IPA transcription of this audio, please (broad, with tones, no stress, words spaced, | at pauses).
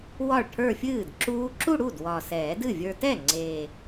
wɒ˥˩ɭʈʰə˞˥˧fʲɨː˥˩dǁuː˦˥ ǁu˥˧ɽu˥˩d wɒ˨˩sɛː˨˩˦dɨ˥˩vʲə˞˧ tɛ˥˩ ŋ͡ǀeː˨˩